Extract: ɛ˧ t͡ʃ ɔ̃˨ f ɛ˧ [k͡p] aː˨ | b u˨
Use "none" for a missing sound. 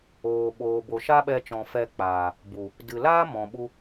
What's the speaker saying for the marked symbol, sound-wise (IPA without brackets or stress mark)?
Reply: k͡p